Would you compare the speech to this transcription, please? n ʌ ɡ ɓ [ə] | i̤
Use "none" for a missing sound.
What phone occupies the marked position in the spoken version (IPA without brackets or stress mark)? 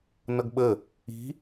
ə